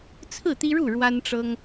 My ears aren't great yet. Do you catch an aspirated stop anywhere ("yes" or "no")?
yes